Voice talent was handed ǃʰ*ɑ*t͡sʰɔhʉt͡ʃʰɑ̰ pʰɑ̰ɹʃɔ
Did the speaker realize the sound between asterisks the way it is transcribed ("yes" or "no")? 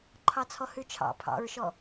yes